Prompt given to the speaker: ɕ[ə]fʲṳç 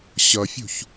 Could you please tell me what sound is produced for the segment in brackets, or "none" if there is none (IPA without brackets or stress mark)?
ʌ